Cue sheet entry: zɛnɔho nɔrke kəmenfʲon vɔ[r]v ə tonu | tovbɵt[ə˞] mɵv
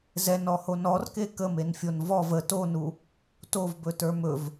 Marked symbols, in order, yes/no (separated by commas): no, yes